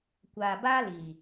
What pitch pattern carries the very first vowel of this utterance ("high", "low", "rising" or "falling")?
low